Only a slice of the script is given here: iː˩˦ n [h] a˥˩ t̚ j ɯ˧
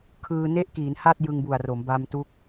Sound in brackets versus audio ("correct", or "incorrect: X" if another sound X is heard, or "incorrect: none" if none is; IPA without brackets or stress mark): correct